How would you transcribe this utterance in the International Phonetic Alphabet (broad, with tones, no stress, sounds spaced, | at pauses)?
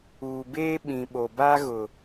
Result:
uː˨ b eː˦ ɓ ĩ˨ ɓ o˨ b a˦ ɣ ʊ˨